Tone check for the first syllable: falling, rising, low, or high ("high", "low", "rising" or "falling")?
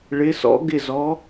rising